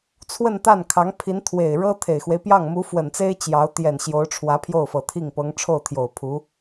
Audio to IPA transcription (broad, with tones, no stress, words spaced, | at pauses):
t͡sʰwə˥˧nt̪a˥˩nkʰɑ˧˥ŋpʰi˧˥n t̪ʰwe˨˩ɪ̯ɻɤ˥ t̪ʰe˨˩ɪ̯xwe˦ɪ̯ pjɑ˥˩ŋmu˧˥ fwə˨˩nt͡se˥ɪ̯ t͡ɕjɑ˧˥ʊ̯ t̪jɛ˨˩n ɕjo˧˥ʊ̯ʈ͡ʂʰwä˧˥ pʰjo˥˩ʊ̯fɤ˨˩t̪ʰi˥˩ŋpɤ˧˥ŋ ʈ͡ʂʰo˥˩ʊ̯t̪ʰjo˨˩ʊ̯pʰu˧˥